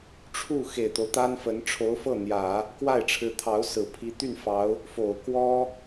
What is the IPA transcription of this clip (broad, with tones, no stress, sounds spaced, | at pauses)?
ʈ͡ʂʰ u˥˩ x e˨˩ ɪ̯ t̪ o˦ ʊ̯ t̪ a˥ n f ə˧˥ n ʈ͡ʂʰ o˧˥ ʊ̯ f ɤ˥˩ n̪ j ä˨˩˦ | k w a˥˩ ɪ̯ ʈ͡ʂʰ ɻ̩˧˥ t̪ʰ ɑ˧˥ ʊ̯ s ɹ̩˨˩ pʰ i˧˥ t̪ y˥˩ n f ɑ˧˥ ʊ̯ | f o˨˩ ʊ̯ k w ɔ˥